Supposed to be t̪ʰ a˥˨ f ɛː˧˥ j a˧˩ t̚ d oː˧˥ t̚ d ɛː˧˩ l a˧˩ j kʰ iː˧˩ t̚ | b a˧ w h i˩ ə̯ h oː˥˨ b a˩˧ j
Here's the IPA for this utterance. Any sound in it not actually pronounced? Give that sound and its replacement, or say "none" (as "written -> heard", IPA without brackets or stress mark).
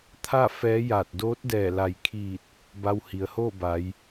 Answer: none